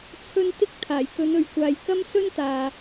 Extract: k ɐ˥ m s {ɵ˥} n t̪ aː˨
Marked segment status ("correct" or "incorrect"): correct